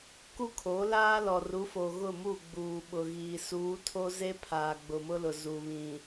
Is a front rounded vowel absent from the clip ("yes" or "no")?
yes